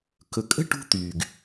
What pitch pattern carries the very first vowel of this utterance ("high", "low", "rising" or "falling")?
low